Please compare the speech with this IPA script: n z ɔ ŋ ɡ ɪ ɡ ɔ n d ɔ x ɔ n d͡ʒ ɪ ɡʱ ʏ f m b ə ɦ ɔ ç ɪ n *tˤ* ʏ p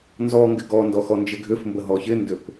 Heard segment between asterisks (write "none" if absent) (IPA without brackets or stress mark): d